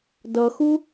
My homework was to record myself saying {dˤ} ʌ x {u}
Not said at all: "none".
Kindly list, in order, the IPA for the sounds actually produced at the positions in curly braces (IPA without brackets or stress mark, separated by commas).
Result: d, u